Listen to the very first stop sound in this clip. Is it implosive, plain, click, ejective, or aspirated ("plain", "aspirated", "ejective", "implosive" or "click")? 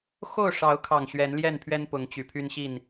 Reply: aspirated